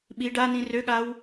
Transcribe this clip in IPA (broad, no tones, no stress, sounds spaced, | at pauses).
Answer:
ɓ i ɖ a n ĩ r ø ɠ a w